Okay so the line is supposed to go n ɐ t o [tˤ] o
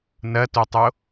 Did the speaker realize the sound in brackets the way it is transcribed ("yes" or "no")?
yes